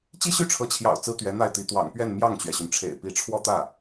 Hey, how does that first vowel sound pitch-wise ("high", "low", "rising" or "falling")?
high